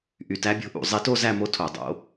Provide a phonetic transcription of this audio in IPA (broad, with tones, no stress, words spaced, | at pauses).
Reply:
ʔy˧tæ˧˥bʲo̤˧˥ʔṵ˧˩˧ zˤi˧to˥˧ zæ˥˧mo˧˥ tʰo˧˩˧dˤo̰˧˥